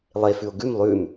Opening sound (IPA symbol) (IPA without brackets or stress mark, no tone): lˠ